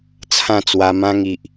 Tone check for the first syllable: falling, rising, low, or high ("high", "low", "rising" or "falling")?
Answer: falling